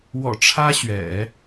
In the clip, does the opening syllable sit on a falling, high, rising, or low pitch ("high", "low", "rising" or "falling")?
low